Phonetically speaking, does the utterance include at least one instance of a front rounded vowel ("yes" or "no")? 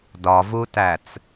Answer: no